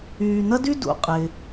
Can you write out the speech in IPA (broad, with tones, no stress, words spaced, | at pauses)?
yː˨n̪ɐ˥dy˥ dṵ˨qʼɪ˩